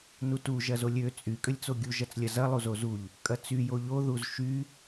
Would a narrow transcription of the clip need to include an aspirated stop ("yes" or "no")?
no